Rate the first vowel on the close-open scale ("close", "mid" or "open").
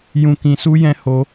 close